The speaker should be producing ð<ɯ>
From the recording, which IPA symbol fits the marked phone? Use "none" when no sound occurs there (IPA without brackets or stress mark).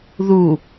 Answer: u